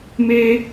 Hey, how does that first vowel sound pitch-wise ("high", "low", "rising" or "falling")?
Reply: high